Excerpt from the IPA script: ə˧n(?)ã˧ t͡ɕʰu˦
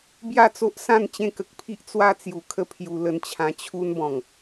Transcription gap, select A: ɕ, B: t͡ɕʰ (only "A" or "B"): B